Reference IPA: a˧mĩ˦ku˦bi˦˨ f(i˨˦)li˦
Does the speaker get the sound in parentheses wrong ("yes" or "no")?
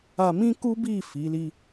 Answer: no